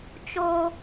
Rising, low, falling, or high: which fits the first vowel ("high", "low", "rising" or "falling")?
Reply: high